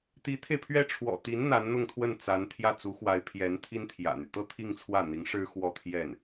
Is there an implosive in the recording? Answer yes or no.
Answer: no